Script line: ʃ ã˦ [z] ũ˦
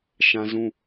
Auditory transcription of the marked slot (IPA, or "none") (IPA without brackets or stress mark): z